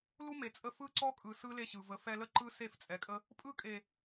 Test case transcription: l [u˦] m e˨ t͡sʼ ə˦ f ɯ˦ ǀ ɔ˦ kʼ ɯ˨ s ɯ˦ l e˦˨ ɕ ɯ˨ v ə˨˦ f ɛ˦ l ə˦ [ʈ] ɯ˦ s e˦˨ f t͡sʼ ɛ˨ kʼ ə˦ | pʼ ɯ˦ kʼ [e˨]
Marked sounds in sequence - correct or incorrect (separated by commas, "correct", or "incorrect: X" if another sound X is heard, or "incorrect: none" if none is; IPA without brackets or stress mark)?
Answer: correct, incorrect: ǃ, correct